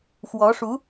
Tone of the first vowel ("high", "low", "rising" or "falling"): rising